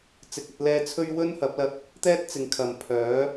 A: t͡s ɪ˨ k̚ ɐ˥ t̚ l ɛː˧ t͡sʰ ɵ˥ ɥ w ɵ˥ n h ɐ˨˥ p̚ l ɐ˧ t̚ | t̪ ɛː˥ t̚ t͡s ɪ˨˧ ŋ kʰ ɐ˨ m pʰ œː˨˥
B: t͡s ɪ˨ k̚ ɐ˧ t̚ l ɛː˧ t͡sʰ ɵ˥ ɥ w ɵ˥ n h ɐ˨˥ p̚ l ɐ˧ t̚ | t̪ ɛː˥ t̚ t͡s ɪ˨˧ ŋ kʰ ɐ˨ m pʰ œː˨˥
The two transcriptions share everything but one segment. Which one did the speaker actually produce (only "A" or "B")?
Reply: B